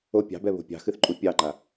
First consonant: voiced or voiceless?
voiceless